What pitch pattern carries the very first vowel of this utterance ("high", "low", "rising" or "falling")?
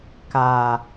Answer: low